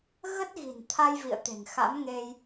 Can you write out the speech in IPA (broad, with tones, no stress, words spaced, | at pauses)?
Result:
ɣə˦˥t̚ɣi̤˨˩n t̪ʰa˧jvḭ˧˨ə̯t̪e̤˨˩ŋ xa̰˧˥mŋe˧j